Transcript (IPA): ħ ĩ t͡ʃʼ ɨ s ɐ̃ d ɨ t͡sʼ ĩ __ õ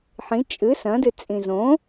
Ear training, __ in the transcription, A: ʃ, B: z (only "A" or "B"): B